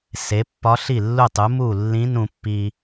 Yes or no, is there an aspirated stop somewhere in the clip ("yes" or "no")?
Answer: no